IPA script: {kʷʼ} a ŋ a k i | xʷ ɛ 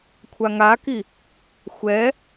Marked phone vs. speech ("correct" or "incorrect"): incorrect